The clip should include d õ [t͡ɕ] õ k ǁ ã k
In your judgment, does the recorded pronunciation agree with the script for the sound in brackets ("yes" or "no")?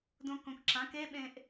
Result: no